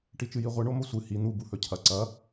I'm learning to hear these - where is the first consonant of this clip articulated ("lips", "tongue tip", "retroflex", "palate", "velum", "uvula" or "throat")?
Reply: retroflex